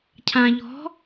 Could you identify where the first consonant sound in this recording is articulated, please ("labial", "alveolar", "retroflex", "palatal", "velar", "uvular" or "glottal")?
palatal